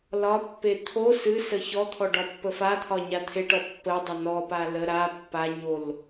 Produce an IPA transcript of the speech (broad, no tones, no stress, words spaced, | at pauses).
lɒpːe t̪ʰo sɨsə çɔt̪ʰɔ ɖɒpːəfat̪ʰɒ ɲat̪ʰeʈɔ pːədˤə nɔpa lə ɾa pːaɲol